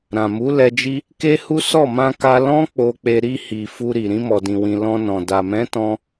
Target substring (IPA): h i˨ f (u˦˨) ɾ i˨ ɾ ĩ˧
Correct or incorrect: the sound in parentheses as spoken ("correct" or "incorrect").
incorrect